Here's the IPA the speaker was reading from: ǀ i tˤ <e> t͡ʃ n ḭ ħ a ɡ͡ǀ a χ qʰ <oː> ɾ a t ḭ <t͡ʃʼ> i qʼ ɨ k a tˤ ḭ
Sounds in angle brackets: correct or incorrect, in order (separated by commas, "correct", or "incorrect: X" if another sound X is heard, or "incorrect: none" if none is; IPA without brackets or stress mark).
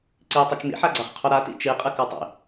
incorrect: ɨ, incorrect: o, incorrect: t͡ʃ